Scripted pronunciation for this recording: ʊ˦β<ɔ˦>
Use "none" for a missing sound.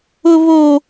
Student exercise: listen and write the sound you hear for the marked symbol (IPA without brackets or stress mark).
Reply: o˦